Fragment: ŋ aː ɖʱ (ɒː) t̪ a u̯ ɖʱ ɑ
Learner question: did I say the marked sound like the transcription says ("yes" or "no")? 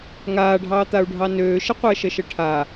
no